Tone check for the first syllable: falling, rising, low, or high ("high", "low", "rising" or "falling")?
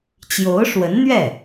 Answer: rising